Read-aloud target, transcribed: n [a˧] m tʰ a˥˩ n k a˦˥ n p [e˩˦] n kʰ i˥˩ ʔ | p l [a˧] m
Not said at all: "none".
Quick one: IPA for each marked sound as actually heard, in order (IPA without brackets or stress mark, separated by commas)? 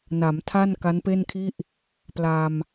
a˩˦, e˥˩, a˧